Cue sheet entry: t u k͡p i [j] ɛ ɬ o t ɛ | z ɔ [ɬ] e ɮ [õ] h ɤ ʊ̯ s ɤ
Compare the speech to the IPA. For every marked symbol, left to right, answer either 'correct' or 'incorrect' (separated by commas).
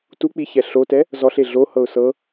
incorrect, correct, incorrect